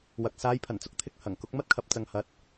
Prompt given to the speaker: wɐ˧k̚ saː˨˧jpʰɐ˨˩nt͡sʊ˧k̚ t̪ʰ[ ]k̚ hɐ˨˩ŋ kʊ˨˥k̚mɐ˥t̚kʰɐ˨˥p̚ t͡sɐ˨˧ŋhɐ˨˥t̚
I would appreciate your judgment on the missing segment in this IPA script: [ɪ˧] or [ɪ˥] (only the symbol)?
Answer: ɪ˧